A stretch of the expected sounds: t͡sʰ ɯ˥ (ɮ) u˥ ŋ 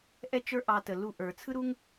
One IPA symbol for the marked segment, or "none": ɾ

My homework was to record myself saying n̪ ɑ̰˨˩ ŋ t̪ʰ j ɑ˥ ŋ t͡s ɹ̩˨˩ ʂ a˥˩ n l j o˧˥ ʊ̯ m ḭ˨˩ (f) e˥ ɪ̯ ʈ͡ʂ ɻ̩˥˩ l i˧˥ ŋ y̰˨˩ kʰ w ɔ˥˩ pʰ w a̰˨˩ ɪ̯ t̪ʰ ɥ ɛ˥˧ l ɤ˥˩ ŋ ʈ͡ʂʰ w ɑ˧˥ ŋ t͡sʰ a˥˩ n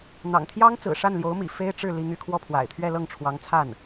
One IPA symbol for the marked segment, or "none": f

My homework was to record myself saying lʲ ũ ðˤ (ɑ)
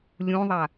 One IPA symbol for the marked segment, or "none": a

